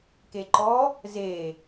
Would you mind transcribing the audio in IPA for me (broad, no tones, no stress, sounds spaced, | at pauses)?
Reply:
k e ǃ ɔ | z e